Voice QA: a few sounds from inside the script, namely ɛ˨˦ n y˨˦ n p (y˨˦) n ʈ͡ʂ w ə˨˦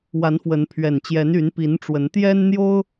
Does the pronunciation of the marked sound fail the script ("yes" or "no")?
yes